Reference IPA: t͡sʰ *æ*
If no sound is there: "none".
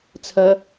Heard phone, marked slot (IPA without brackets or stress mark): ə